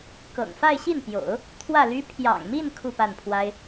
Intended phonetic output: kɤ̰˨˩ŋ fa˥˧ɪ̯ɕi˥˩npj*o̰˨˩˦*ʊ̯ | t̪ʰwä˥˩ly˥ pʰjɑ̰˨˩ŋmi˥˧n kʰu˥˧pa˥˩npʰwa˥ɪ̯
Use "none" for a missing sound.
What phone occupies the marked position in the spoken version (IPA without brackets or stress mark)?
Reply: o̰˨˩˦